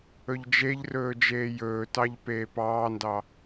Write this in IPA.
ɵʎd͡ʒeʎrɵː d͡ʒeːjɵːtɑʎ peːpɑːndɑ

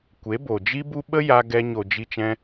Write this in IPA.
kʷe˨˦bo˨d͡ʒi˦bu˦ ɓə˦ ja˧ɡɛ˧ ɲo˨d͡ʒi˧t͡ʃɛ̃˧

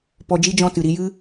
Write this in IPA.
pɔ˧d͡ʒi˦d͡ʒɔ̃˦˨ tɨ˨ɾi˧jɨ˦

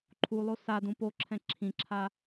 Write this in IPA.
ǃʰulˠo sa dũpoǁʰɛ̃ ǁʰĩǁʰa

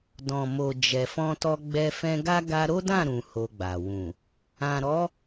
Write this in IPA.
dɔ̃˨mo˨ d͡ʒɛ˨fɔ̃˧tɔ˧ ɡ͡bɛ˧fɛ̃˧ɡa˦ ɡa˧ɾo˦dã˦˨ ɾũ˧ho˧ɡ͡ba˨ wũ˨ | ã˨ɾɔ˨˦

